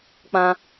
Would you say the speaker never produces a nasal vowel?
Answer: no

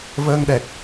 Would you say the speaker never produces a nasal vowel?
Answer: yes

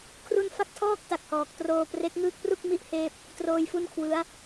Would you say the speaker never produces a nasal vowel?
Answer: yes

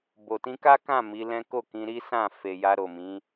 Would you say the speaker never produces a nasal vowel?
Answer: no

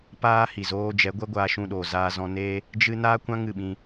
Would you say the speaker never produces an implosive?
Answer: no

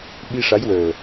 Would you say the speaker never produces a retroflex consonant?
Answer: no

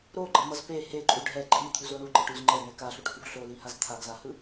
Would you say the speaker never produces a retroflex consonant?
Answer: no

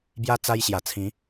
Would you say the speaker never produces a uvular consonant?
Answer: yes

